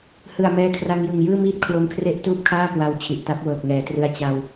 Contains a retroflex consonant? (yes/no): no